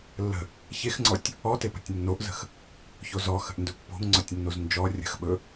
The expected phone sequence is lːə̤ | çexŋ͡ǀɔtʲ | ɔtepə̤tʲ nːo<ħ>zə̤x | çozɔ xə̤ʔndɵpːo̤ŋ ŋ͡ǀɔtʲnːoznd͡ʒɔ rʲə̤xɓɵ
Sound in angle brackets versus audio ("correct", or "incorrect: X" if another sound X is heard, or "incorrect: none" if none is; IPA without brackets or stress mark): incorrect: ʔ